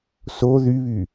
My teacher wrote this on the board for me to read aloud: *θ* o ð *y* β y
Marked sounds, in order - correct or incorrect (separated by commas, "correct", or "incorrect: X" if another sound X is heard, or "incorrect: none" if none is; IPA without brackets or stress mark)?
incorrect: s, correct